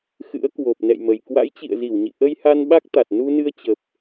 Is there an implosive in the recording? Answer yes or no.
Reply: yes